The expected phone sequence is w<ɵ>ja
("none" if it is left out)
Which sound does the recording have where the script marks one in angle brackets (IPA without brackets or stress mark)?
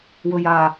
ɵ